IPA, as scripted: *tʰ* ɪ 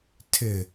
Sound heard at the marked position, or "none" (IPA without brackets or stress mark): tʰ